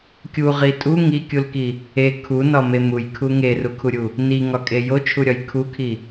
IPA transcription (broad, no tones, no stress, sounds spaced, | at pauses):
kʲ u ʁ i tʼ u ŋ i kʲ u l k i | e kʰ u n ɒ m e m u j kʰ u ŋ e r u kʰ u ɾʲ u | n i ŋ ɒ kʼ e j o t͡ʃʰ u ɾʲ ɒ j kʰ u kʰ i